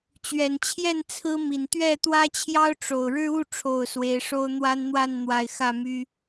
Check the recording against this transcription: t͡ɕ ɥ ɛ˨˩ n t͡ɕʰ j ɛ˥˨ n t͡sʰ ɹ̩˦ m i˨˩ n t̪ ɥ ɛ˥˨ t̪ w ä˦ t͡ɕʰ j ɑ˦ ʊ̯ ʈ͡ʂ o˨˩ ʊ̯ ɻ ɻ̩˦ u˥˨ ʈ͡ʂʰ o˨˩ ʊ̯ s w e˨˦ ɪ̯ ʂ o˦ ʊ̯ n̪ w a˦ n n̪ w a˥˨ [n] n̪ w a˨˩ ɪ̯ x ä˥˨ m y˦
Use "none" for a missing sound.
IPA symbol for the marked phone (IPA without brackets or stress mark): n